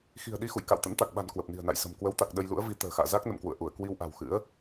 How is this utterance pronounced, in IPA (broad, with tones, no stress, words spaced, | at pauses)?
xi̤˨˩ə̯ɗi˧xṵ˧˨j ka̰˧˨wt̪ə̰˧˥nt̪a˨˩k̚ɓa̤˨˩n kwə˨˩p̚ni̤˨˩ə̯na̰˧˨jsə̤˨˩m kwə˨˦wt̪a˨˩k̚ ɗə˧jlṵ˧˥ə̯ vi˨˦t̪ə̤ː˨˩xa̰ː˧˨ za˦˥k̚ nə̰˧˨mkwṵ˧˨ə̯ ʔu˧˩ə̯ kwi˧wʔa̤˨˩wxɨ̰˧˥ə̯